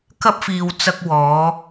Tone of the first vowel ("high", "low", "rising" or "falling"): high